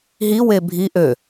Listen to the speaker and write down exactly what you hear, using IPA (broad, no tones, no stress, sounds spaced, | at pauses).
ɦ i w e bʱ i ʔ ø